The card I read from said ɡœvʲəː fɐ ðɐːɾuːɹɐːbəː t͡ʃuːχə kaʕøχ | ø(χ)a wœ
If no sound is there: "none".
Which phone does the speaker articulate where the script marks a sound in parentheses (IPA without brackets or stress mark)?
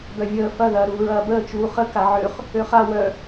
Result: χ